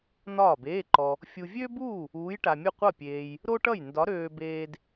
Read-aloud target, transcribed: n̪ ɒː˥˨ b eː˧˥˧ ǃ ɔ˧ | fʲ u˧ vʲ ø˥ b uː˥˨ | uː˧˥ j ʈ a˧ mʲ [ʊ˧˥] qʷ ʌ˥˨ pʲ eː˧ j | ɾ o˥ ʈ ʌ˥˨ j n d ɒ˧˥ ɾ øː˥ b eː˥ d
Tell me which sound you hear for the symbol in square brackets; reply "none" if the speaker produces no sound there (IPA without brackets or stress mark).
ʊ˥˨